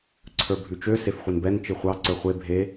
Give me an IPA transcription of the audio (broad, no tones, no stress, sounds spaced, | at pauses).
ǀʰ ə˞ bʱ ʉ t͡ʃ ø s e f χʷ e n b ɛ n t͡ʃ i χʷ ɑ ǀ ə˞ χʷ e bʱ e